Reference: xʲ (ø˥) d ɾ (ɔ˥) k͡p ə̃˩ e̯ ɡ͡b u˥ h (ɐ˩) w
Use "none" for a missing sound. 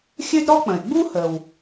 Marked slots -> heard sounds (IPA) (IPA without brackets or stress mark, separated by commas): ø˥, ɔ˥, ə˩